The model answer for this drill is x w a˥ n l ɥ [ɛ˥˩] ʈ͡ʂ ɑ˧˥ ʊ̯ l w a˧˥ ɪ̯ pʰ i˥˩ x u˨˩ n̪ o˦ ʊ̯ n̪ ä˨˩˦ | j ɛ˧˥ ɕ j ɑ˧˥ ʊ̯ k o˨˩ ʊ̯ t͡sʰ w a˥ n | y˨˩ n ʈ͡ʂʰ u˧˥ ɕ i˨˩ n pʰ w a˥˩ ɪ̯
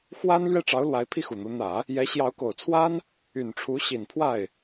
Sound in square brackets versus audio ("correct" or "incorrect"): correct